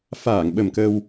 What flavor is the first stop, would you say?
implosive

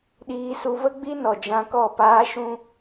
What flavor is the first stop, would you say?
implosive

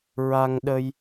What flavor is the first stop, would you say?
implosive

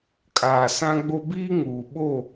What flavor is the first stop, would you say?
ejective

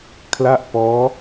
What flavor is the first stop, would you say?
aspirated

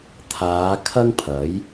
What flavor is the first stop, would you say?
aspirated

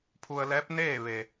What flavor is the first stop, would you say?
aspirated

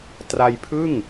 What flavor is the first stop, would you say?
plain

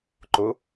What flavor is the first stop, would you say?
click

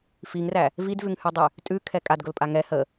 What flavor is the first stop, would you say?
plain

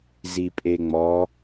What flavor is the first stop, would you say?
ejective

